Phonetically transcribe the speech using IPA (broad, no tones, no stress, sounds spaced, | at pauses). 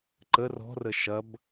ǃ ə r ɔ̤ r ə ʃ ɐ b